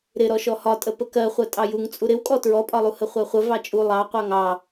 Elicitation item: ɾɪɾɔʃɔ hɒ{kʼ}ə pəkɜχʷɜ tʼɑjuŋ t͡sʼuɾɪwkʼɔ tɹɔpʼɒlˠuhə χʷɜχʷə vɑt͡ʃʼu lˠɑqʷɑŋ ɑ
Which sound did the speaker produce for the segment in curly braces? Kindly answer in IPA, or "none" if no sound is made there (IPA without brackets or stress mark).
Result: tʼ